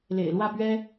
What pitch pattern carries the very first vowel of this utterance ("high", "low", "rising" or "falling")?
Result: low